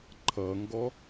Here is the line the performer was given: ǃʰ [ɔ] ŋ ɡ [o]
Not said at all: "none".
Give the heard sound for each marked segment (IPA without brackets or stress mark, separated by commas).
ʌ, ɔ